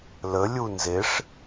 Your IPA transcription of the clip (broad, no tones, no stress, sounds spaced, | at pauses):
l ə lʲ u n z e ʂ